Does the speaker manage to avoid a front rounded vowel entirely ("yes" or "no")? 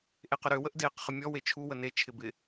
no